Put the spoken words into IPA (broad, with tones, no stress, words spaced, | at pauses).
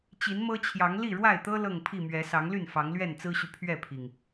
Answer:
t͡ɕi˨˦nmɤ˦t͡ɕʰjɑ˨˦ŋ li˥˨ɻwa˥˨ɪ̯t̪ɤ˦ lɤ˥˨ŋpʰi˥˨mɥɛ˨˦ sɑ˨˦ŋly˥˨n fɑ˨˦ŋlɥɛ˥˨nt͡sɹ̩˦ɕy˨ pʰɥɛ˥˨pʰi˩ŋ